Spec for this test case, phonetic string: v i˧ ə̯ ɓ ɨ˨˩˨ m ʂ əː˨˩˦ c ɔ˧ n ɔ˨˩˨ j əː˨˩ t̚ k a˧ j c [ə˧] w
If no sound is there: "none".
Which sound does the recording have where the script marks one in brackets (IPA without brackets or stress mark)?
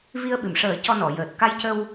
ə˧